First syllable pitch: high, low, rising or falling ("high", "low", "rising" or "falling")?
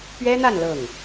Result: high